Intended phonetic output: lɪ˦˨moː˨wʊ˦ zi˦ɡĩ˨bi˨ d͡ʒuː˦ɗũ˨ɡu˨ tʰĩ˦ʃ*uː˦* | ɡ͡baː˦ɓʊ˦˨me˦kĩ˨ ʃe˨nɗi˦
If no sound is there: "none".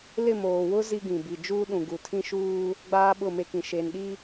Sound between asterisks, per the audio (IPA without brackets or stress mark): uː˦